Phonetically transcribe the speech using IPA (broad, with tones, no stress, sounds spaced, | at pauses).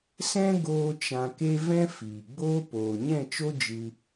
s ɛ̃˦ ɡ oː˦ t͡ʃ ã˧ k e˦ v ɛ̃˦ f iː˨ ɡ͡b oː˦ p oː˨ ɲ ɛ̃˦˨ t͡ʃ o˦ d͡ʒ ɨ˧